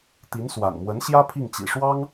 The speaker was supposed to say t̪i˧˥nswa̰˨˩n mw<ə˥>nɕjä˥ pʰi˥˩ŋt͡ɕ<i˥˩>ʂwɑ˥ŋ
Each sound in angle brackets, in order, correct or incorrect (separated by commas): incorrect, incorrect